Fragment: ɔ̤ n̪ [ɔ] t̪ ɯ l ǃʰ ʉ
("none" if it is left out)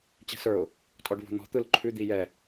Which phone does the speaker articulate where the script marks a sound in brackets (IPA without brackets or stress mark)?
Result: ɔ̤